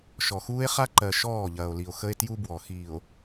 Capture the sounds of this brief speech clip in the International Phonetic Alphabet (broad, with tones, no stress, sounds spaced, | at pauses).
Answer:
ʃ ɔ˨ x uː˦ e̯ χ a˦ ǃ ɜ˨ ʃ ɔː˦˨ ʎ ɐː˨ o̯ l i˨ o̯ x ə˦ e̯ t j u˦ b w ɔ˨ x iː˨ o̯